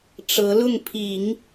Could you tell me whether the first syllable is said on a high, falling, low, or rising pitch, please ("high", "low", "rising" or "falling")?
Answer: rising